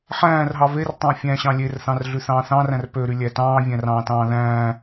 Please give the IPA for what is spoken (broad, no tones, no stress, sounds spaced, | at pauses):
ħ æ̃ː r ɦ ɑ v e r tˤ æ̃ fʲ æ̃ ɕ ɑ̃ lʲ e r θ ɑ̃ r ɮ y θ ɑ̃ː θ ɑ̃ r æ̃ r p ø ɾ y lʲ æ t ɑ̃ː vʲ æ̃ r ɑ̃ː t ɑ̃ː ð æ̃ː